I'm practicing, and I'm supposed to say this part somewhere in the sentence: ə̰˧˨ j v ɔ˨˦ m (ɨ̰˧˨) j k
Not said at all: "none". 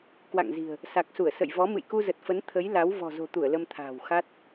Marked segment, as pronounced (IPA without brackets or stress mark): ɨ̰˧˨